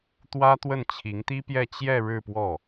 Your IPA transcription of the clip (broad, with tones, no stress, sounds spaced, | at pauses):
t̪ w ä˥ t̪ w ə˥˩ n t͡ɕʰ i˧˥ ŋ t̪ i˥ p j ɛ˥˧ t͡ɕ j ɛ˥˧ ɻ ɻ̩˥˧ p w ɔ˥˩